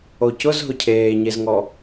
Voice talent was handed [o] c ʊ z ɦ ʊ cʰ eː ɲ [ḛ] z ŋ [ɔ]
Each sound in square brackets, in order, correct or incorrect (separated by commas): correct, incorrect, correct